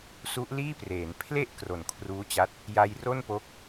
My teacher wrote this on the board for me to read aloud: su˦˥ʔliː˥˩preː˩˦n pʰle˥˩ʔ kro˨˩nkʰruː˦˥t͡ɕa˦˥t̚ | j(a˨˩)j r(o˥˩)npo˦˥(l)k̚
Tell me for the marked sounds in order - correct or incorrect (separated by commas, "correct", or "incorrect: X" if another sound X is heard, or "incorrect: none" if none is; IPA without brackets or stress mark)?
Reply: incorrect: a˧, correct, incorrect: none